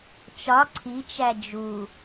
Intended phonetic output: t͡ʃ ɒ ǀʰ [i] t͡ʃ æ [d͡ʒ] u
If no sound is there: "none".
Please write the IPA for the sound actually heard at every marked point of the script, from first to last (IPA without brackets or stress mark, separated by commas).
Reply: i, d͡ʒ